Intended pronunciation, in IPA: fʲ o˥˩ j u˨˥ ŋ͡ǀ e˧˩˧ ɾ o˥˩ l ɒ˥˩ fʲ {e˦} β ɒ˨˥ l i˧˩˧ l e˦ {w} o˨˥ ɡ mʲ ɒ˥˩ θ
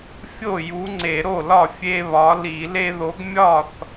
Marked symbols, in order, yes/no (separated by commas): yes, no